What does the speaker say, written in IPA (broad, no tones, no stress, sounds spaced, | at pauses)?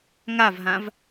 ŋ a v ɦ ã v